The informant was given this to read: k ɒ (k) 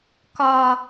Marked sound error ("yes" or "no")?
yes